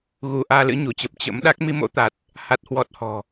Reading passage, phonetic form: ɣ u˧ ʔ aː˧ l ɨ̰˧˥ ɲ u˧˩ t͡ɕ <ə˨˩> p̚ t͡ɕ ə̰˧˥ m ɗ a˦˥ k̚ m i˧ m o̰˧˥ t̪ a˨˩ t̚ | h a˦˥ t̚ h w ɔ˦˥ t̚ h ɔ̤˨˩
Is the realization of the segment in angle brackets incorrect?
no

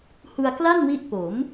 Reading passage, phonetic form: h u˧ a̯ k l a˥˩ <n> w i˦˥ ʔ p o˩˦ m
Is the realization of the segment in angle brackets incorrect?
no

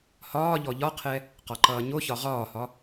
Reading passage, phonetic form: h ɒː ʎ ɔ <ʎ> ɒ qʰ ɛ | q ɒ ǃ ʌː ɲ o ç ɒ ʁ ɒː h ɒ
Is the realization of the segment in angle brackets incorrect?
no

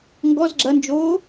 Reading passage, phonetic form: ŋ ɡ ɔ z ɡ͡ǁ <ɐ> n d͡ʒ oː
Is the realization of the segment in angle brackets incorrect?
no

